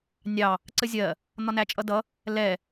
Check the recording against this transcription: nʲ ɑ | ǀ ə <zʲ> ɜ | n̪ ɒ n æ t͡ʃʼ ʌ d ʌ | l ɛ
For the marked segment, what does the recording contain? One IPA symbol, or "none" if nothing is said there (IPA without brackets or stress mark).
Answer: zʲ